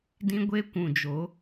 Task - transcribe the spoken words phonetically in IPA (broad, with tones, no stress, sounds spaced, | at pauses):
d ĩ˦ ɡʷ e˦ kʷ ũ˨ d͡ʒ o˨˦